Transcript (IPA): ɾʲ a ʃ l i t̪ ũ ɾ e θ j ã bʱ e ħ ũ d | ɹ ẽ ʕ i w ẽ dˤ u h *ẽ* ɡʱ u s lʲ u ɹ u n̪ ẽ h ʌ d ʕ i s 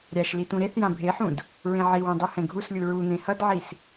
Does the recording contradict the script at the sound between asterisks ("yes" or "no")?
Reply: yes